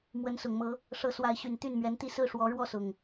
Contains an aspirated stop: no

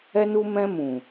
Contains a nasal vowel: yes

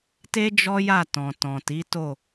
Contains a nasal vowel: yes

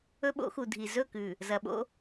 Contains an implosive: yes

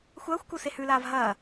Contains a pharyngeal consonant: no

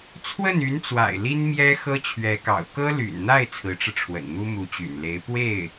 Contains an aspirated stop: yes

